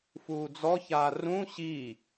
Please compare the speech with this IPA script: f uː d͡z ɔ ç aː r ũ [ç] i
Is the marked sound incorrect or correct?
incorrect